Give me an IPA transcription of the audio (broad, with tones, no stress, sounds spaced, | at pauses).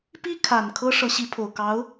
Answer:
p i˥ kʰ a˨˩ n kʰ ɤ˥ ʂ ɤ˧˥ ɕ i˧˥ pʰ o˨˩ ʊ̯ k ɑ˧˥ ʊ̯